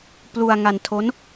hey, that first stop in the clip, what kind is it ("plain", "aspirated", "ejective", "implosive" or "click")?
plain